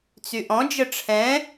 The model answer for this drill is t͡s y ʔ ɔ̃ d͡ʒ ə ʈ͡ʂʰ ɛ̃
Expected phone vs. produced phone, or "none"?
none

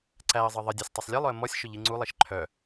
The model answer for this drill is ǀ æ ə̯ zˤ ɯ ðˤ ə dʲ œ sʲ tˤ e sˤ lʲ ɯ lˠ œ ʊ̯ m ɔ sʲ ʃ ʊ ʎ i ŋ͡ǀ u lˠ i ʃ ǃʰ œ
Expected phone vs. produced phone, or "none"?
ʊ̯ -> ə̯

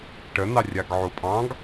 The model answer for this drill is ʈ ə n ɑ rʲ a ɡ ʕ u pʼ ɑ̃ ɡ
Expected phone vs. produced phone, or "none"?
none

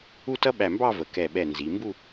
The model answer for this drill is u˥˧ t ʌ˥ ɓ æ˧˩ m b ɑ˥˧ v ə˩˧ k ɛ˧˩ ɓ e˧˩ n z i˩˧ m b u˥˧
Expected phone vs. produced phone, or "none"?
e˧˩ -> ɛ˧˩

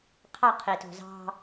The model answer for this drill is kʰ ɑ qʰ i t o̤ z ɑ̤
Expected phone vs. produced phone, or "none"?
kʰ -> qʰ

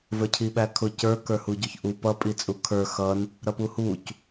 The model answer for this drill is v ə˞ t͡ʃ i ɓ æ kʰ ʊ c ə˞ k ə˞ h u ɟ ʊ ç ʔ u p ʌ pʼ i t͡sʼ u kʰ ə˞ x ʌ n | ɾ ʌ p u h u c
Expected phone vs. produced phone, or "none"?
t͡ʃ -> cʰ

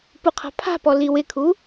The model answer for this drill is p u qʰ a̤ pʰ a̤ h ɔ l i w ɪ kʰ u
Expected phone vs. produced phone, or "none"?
h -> p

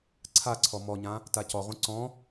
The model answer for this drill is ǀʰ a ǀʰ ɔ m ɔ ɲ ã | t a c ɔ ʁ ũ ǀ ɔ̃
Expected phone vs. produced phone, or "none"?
none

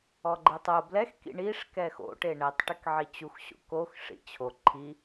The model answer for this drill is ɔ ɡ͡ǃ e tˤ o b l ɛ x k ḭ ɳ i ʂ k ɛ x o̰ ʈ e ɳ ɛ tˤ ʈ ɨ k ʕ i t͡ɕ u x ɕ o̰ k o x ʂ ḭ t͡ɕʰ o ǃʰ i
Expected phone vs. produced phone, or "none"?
none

